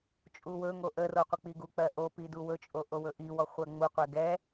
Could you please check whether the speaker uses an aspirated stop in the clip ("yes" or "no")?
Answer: no